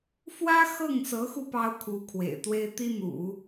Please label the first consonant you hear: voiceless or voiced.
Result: voiceless